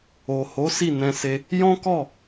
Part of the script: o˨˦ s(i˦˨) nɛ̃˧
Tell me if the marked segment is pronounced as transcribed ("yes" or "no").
yes